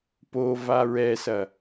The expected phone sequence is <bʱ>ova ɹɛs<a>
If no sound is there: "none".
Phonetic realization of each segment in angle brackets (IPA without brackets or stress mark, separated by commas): p, ɐ